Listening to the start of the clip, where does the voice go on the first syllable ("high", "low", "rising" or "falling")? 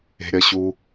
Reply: high